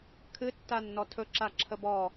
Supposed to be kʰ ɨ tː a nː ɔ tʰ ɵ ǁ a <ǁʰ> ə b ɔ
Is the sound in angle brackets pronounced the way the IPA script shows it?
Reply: yes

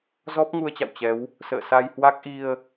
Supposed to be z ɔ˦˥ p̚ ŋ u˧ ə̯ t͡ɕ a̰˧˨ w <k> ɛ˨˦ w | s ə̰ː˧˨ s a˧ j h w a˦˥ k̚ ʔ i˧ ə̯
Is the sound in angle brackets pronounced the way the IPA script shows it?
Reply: no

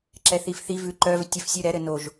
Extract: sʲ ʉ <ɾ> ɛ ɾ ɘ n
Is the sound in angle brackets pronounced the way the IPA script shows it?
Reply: yes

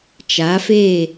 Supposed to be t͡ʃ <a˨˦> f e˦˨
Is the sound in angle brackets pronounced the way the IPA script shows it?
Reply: yes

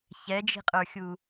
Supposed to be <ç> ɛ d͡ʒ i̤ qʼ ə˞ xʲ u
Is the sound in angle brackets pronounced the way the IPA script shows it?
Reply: yes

